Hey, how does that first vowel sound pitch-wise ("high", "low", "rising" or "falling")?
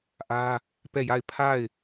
high